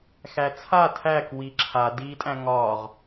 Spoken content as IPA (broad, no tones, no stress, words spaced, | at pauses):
xæt͡sʰa tʰæk wiǁʰa diːtʼæ̃ŋɒːʁ